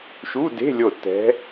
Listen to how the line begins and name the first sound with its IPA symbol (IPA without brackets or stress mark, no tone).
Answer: ʃ